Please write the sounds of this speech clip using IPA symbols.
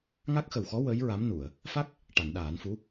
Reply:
ŋ a˦˥ k̚ x ə˨˩ w x ɔ˧˥ w ə˧˥ j ɹ a˧˥ m n u˨˩˨ ə̯ | f a˦˥ k̚ | ʈ a˨˩˨ n ɗ aː˨˩˦ n f u˧˥

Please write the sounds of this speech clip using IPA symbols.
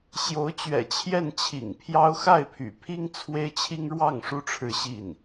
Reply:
ɕ j o˧˥ ʊ̯ t͡ɕ ɥ ɛ̰˨˩ t͡ɕʰ j ɛ˥˩ n t͡ɕʰ ḭ˨˩ ŋ pʰ j ɑ˥ ʊ̯ x a˥˩ ɪ̯ pʰ y̰˨˩ pʰ i˥ ŋ t͡sʰ w e˥ ɪ̯ t͡ɕʰ i˥ ŋ ɻ w ɑ˥˩ ŋ ʂ u˥ ʈ͡ʂʰ ɻ̩˥˧ ɕ i˥˩ n

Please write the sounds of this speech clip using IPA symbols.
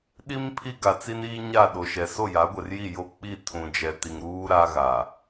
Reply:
ɗ i˦ m pʰ i˦ ɡ a˨ t͡s i˦ n iː˦ ɲ a˦˨ ɗ o˨ ʃ ɛ˨ s o˦˨ j a˨˦ ɡʷ ɛ˨ r j i˦˨ j o˦ k͡p i˦˨ tʰ ũ˨ d͡ʒ ɛ˨ t i˨ ŋ ɾ uː˦ ɾ a˦ ɣ a˨

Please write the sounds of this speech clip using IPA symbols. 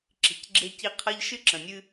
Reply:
ǁ i̤˨ c ɡ͡ǁ e˦ c i˦ qʰ ɤ˦ ʎ ʃ ɨ˦ ǁ ə̃˨ nʲ ɨ˦

